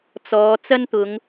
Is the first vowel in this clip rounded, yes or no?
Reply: yes